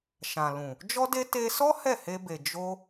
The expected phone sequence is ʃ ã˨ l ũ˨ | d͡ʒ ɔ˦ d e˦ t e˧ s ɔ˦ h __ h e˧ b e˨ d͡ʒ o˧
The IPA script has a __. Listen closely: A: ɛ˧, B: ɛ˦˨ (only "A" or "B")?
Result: B